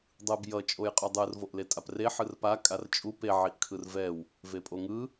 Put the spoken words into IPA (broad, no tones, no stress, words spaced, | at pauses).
dˤɯb jʌ t͡ʃʼojqʼudˤɯr voʔletʼapre ħɯrpa kʼart͡ʃʼu pe ʕiʔkʰɯrvɛw | vepʼoŋɯ